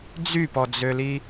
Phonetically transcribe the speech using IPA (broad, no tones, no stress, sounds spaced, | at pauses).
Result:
d͡z y p ɔ d͡z ø l i